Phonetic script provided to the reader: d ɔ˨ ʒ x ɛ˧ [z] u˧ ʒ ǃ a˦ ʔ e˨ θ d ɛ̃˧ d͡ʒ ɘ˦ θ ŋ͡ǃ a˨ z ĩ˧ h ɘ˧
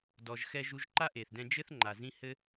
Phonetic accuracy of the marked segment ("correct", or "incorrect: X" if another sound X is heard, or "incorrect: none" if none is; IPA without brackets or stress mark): incorrect: ʒ